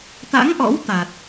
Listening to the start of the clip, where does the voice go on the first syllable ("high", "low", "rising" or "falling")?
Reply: rising